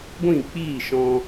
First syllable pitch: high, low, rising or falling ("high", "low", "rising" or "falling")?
falling